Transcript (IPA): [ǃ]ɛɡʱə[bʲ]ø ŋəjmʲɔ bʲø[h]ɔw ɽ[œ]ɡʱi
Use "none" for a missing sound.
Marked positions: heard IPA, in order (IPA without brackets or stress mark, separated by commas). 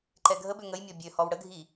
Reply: ǃ, b, h, ə